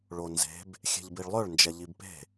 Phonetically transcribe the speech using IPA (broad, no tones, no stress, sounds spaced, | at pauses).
ɭ o n z e̤ b | xʲ e̤ ʎ b i ɭ lˠ œ ɭ n d͡ʒ ɛ ʎ i b p e̤